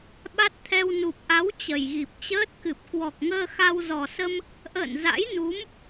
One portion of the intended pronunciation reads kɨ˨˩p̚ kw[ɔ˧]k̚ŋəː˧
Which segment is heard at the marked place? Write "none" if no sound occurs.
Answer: ɔ˨˩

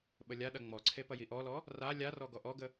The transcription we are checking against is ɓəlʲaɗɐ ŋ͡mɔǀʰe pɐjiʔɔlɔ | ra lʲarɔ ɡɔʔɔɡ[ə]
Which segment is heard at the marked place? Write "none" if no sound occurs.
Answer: ə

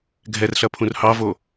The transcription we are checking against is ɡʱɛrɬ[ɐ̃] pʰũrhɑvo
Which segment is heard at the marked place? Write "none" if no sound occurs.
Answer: ɐ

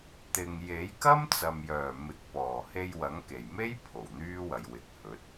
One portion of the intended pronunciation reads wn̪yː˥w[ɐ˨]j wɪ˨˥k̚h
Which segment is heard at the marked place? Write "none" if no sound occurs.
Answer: ɐ˨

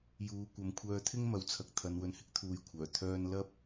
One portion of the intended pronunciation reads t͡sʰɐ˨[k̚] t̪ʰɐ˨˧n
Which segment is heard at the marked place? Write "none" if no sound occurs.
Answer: k̚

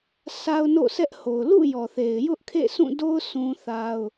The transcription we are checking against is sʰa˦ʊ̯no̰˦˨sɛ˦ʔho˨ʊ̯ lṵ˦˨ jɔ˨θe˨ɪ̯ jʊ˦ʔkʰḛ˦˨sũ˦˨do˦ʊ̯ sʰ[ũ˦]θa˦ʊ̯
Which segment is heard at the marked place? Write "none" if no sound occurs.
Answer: ũ˦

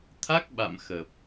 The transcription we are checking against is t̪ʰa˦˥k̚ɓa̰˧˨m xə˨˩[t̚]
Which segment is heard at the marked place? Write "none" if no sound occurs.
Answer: p̚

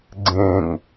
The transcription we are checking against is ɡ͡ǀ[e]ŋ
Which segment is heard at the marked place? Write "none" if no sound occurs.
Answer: ẽ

